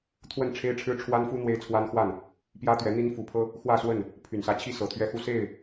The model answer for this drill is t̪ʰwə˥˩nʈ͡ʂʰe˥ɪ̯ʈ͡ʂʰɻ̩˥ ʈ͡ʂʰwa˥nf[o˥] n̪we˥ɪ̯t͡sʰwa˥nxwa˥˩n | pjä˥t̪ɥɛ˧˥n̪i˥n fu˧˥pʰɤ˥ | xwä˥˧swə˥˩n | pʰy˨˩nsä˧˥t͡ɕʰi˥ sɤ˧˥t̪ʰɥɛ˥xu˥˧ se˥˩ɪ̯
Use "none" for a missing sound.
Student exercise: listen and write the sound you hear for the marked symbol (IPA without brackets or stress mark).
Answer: u˥